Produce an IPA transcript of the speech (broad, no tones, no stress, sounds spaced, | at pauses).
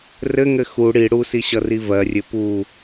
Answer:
r ɘ ŋ ɘ x u ɽ i ɽ u s i ɕ ʌ r i v ɜ rʲ ɘ p u